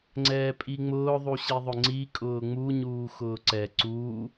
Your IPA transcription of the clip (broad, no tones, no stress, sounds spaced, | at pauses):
ŋ͡ǀ ɛː pʼ i ŋ͡m ʊː ðˤ u ɕ i ðˤ ʊ ŋ͡ǀ i kʼ ʊː ŋ͡m u ɲ uː x ʊː ǀ ɛ ǀ uː